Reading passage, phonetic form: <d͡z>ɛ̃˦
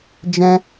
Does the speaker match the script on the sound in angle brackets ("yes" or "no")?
no